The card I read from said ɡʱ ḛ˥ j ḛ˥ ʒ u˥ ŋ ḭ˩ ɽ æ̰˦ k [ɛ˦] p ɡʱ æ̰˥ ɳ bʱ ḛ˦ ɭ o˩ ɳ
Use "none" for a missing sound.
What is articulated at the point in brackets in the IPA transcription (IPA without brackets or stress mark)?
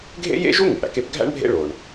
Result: e˦